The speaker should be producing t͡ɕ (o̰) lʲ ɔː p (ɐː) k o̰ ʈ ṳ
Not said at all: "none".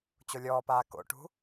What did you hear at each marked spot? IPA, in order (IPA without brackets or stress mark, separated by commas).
o, aː